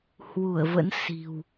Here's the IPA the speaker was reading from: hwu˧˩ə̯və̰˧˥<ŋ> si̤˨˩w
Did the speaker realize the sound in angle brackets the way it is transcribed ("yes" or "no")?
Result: no